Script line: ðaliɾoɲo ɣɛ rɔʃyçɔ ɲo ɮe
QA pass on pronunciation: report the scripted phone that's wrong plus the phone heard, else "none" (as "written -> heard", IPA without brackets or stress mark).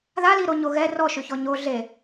none